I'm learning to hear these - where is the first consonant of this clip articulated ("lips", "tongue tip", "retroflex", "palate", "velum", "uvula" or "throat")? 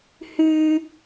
throat